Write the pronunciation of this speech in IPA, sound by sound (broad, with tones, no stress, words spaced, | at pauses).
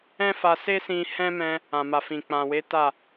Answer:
ɛ̃˦fa˧se˦sĩ˧ hɛ̃˦mɛ̃˧ | ã˨ma˨fĩ˨ k͡pã˨ we˨˦ ta˦˨